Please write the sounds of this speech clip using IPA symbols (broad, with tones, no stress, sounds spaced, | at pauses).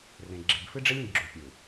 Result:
r ẽ˨ ɡ͡ǁ e˨ b f ɨ˦ ɖ͡ʐ e˦ lʲ ĩ˨ ɡ ɡ͡ǁ u˨ pʲ u˨